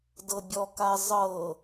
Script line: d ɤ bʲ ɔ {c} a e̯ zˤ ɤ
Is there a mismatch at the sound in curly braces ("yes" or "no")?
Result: yes